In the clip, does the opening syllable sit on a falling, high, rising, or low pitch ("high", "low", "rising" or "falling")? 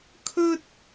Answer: high